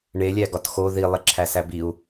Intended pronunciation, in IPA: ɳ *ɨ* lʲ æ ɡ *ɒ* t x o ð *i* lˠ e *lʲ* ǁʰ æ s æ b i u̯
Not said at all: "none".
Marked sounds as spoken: e, ɒ, i, none

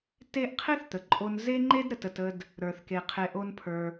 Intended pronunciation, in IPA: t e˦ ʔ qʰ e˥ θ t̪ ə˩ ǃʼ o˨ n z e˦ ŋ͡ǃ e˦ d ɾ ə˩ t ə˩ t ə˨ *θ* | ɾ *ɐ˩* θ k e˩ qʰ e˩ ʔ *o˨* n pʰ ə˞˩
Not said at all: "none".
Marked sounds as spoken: d, ə˞˩, o˨

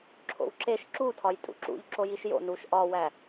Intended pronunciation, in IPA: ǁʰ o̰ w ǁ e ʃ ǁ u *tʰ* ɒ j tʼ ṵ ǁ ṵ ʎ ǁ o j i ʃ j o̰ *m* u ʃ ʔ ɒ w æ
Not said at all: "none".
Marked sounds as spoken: tʰ, n

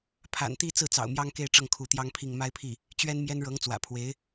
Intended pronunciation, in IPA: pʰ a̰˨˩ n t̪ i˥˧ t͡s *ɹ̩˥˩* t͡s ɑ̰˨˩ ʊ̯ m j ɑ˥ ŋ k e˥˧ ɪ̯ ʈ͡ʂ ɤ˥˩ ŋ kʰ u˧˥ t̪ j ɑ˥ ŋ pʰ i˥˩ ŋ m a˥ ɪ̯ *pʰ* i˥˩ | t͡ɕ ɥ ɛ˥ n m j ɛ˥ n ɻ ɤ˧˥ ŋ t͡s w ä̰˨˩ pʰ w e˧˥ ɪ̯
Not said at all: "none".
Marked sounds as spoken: ɹ̩˥˩, pʰ

